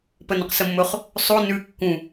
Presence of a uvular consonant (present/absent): present